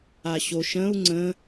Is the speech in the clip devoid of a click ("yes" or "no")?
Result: no